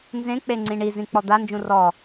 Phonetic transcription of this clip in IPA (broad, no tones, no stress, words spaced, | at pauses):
nzẽk͡pe ŋ͡ǀĩɳizĩ k͡pɔd̪and͡ʒũ rɔ